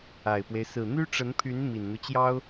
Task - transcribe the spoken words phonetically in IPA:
a˨˩ ɪ̯ p w e˦ ɪ̯ s ɹ̩˨˩ n̪ y˥ ʈ͡ʂ ə˧˥ n pʰ y˧˥ n m i˨˩ n n̪ u˦ t͡ɕ j ɑ˥ ʊ̯

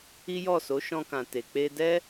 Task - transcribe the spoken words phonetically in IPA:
i˦ j ɔ˦˨ s o˨˦ ʃ ɔ̃˧ k ã˨ t e˨ k͡p e˧ d ɛ˦

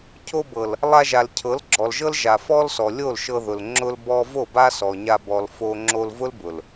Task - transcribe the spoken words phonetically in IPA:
cʰ o˧ b ɤ˨ l | lˠ a˧ ʒ a˨ l cʰ ɤ˨˦ l ɡ͡ǁ ɔ˨ l ʒ ɤ˦ l ʒ a˨ f ɔ˦ l s ɔ˨ lʲ o˦˨ l ʃ ɤ˧ ð ʊ˨ l ŋ͡ǁ ʊ˧ l b ɔ˧ v o˦˨ b a˦ s ɔ˨ ɲ a˧ b ɔ˨ l f o˧ ŋ͡ǁ o˧ l v ʊ˦ l b ʊ˨ l

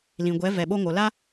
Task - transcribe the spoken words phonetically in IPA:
l ĩ˨ ɡʷ ɛ˨˦ v ɛ˨ ɓ o˧ ŋ o˨ l a˦

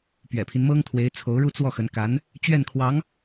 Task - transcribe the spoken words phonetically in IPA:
p ɥ ɛ̰˨˩ pʰ i˦ n m ɤ˥ ŋ t̪ʰ w e˧˥ ɪ̯ t͡sʰ o˧˥ ʊ̯ ɻ u˥˧ t͡s w ɔ˥˩ x ə˧˥ n k a˧˥ n | t͡ɕ ɥ ɛ˥˩ n kʰ w ɑ˧˥ ŋ

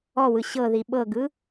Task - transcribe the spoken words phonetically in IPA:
ɔ w ɯ ɕ ɤ ð i ɓ ɤ ɡ ɯ

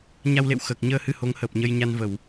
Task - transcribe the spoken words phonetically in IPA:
ɲ a˧ w l ḛ˧˨ w x əː˨˩ k̚ ɲ əː˧ h ɨ˧ h o˨˦ ŋ h əː˨˩ p̚ ɲ ə˧ j ɲ a˧ n v ə˧˩˨ w

